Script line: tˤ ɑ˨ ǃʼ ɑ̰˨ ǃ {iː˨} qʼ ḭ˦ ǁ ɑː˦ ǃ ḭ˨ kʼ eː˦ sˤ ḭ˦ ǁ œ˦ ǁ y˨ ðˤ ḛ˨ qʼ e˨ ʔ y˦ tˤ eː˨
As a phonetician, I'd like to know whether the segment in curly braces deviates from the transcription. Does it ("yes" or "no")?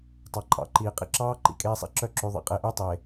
no